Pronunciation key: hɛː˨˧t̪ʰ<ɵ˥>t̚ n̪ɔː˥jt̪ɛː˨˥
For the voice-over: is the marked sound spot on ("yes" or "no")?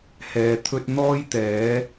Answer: yes